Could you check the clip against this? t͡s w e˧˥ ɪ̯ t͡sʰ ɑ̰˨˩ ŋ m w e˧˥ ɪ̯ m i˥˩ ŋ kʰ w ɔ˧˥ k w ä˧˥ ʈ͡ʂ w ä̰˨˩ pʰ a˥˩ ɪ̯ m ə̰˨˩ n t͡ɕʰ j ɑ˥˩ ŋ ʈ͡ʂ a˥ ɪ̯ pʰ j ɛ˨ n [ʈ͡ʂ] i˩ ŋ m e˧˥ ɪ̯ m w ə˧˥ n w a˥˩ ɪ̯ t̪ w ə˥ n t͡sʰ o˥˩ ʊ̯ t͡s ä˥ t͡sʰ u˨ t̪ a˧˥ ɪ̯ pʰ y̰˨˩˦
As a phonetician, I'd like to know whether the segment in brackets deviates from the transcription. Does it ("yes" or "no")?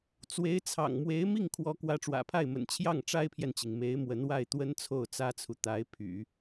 yes